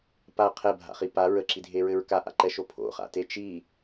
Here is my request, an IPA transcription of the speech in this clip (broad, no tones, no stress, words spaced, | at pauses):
pa qʰɛbʱa̰χi pa ɹəǁidʱeɹɘɹ kaʔa̰ǃɛʃo pʰo̰χa̰te t͡ʃi